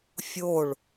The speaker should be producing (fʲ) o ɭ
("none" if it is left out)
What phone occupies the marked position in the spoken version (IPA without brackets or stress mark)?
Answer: fʲ